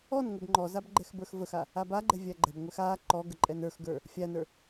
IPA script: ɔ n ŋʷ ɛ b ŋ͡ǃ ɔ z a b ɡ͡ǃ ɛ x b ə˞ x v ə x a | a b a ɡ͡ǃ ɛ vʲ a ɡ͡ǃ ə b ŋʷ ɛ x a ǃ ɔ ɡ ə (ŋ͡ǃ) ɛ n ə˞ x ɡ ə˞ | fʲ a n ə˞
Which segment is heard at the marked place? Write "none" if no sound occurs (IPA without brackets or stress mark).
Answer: ǃʼ